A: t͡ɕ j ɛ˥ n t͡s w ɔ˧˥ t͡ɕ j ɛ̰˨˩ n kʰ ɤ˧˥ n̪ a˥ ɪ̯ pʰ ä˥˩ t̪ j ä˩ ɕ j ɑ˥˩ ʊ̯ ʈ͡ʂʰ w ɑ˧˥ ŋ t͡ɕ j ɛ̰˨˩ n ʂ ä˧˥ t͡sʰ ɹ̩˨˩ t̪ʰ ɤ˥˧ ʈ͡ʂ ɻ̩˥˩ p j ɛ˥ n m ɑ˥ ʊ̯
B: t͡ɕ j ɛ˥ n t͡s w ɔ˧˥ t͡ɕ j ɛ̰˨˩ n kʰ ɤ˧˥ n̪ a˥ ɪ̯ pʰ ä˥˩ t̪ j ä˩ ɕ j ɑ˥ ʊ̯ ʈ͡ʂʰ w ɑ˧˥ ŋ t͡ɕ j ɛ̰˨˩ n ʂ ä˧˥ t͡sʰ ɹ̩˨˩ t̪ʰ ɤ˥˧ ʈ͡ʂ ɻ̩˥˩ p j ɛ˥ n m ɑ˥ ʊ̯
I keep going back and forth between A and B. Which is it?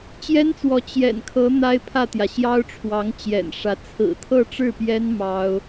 B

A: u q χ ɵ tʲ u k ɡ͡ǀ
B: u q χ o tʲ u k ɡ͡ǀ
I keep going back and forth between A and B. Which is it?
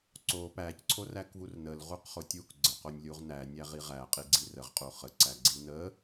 B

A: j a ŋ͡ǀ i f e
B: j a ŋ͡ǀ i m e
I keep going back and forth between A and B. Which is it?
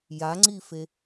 A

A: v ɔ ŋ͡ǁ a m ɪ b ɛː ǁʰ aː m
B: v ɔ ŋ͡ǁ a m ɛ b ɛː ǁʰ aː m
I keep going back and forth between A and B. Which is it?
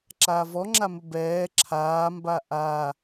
A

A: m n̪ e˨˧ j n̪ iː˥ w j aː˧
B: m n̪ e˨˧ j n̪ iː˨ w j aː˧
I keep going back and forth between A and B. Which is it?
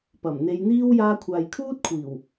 A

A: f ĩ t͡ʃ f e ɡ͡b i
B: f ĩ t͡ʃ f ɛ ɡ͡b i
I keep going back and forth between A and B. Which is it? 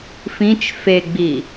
A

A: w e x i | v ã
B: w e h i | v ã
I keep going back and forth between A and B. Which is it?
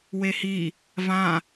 B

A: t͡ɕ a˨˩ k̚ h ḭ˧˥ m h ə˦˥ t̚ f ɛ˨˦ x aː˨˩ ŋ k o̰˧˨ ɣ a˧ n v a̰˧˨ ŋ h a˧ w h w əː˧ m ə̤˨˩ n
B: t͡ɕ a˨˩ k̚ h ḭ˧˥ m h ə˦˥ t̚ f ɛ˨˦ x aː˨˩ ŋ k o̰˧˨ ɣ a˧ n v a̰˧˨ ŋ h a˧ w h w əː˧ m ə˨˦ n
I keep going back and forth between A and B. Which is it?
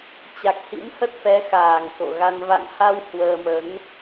B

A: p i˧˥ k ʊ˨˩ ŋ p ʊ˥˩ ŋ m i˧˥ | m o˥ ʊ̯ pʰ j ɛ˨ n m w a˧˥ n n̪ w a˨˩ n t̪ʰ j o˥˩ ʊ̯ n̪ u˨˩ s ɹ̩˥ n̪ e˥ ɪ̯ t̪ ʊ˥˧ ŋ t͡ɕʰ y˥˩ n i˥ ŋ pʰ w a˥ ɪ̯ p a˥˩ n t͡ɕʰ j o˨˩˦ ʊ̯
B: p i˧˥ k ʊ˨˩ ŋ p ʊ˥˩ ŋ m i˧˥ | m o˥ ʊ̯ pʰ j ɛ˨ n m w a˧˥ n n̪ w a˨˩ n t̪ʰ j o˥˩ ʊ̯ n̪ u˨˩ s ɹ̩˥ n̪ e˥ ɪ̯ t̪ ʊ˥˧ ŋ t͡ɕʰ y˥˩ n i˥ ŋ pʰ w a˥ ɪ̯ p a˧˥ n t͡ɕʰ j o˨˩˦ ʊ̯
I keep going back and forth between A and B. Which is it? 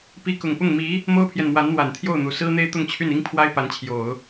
B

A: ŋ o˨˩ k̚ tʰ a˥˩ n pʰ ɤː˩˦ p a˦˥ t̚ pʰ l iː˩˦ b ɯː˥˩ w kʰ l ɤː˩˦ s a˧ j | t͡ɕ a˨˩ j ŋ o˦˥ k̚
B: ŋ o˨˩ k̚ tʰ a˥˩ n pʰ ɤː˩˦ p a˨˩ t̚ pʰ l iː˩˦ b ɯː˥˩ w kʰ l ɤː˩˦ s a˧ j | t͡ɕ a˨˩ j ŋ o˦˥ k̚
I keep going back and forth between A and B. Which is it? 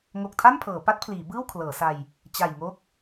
A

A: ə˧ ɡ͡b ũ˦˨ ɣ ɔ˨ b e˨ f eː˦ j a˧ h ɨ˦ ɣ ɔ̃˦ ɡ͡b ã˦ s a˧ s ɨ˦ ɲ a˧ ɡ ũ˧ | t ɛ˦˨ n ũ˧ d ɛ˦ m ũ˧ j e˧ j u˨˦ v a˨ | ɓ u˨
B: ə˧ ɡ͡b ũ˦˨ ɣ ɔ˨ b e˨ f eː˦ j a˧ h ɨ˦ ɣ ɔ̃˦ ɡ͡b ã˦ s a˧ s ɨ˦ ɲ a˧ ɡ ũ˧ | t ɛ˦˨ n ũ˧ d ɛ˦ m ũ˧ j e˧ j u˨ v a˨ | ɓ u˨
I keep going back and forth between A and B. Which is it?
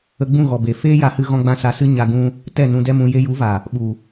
A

